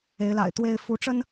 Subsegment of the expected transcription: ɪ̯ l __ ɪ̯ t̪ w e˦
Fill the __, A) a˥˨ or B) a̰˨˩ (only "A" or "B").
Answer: B